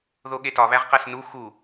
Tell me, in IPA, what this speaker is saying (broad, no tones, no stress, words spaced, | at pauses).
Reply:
ðoɠetɒ βæʁqæsnu xu